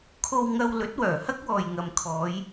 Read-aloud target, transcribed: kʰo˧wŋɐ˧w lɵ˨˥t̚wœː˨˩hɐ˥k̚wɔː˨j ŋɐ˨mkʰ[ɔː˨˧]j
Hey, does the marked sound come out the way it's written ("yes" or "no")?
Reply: yes